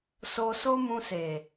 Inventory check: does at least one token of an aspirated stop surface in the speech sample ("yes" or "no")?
no